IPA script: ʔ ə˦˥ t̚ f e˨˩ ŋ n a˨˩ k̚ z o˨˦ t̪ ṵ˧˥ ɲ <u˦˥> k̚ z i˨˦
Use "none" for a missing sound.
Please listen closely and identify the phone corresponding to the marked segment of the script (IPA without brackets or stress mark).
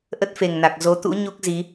u˦˥